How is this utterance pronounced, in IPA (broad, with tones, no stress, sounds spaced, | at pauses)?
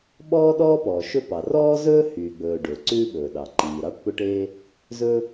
ɓ ɔː˥ ɗ ɔː˥ p ɔː˩ ʃ ɵ˥ p ɑ˩ r ɔː˥ z ɵː˥ h yː˩ ɡ͡b ɵː˩ ɖ ɵː˩ ǀ ʉː˥ ɓ ɵː˩ ɗ ɑ˩ ǃ iː˩ ɾ ɑ˥ ʈ p ɵ˥ ʈ e˥ | z ɵ˥